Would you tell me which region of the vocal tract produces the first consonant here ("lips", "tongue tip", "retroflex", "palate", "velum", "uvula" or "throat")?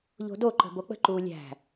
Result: palate